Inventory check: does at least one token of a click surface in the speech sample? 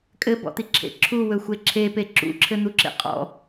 yes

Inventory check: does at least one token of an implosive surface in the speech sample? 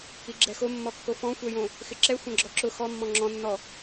no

